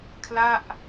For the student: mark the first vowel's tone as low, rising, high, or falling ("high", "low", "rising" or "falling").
falling